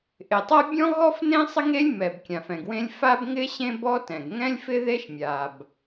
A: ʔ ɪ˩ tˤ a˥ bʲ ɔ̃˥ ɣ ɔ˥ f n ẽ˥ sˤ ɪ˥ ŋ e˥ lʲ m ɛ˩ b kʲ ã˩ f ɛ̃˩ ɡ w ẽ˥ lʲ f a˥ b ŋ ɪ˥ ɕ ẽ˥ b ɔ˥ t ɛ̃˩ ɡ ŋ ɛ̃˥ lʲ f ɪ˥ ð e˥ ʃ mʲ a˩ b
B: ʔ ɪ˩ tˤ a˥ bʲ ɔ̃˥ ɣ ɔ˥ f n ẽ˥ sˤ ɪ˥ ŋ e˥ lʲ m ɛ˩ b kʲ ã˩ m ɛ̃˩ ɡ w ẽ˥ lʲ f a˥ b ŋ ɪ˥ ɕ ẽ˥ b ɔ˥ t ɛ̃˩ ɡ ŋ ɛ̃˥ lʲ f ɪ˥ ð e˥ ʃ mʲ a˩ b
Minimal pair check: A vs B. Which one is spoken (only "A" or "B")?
A